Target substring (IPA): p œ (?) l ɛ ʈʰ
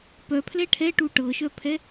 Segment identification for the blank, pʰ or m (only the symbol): pʰ